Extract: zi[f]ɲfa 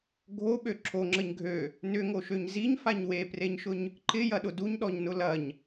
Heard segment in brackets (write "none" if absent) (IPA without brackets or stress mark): none